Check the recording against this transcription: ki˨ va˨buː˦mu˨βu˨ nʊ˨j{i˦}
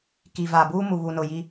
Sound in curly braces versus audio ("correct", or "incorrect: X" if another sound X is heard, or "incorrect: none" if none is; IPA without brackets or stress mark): correct